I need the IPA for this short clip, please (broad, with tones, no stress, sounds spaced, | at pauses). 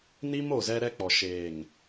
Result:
n i˦ m o˦˨ z ɛ˦ ɾ ɛ˦ k͡p ɔ˨ ʃ eː˨ ŋ